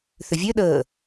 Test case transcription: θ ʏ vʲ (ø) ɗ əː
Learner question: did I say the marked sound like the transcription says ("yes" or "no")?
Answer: yes